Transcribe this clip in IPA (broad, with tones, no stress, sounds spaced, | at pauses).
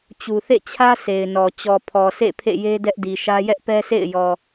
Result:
t͡ɕ u˨ θ ḛ˦˨ t͡ɕʰ ä˦ s e˨ ɪ̯ n ɔ˨ t͡ɕ ɔ˨ pʰ ɔ˨ sʰ ḛ˦˨ pʰ ḛ˦˨ j e˦ d ɛ˦ ʔ d i˨ ʃ ä˦ j ɛ˦ ʔ p ɛ˦ sʰ ḛ˦˨ ɪ̯ j ɔ˨